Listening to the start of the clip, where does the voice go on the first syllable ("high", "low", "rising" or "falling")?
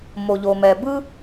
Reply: low